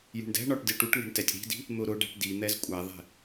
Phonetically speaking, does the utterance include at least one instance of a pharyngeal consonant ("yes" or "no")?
no